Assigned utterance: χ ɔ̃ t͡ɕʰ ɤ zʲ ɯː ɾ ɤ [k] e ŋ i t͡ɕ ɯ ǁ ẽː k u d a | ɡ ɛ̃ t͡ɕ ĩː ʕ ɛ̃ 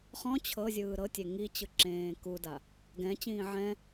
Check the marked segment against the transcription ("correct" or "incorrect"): incorrect